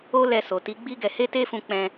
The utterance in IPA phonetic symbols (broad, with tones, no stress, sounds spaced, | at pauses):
o˦ l ɛ˧ s o˨ t i˨˦ ɡ͡b i˦ ɡ ɛ˧ h e˦ t e˦ f ũ˧ k͡p ɛ̃˧